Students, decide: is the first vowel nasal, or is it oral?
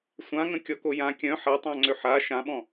nasal